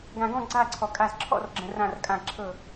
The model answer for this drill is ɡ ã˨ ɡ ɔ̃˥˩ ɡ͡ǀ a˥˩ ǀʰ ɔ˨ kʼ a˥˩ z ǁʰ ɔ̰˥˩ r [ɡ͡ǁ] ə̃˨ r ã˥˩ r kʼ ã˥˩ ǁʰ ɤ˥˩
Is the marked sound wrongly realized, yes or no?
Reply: no